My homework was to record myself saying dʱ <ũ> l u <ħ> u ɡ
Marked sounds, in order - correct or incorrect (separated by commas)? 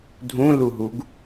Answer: correct, incorrect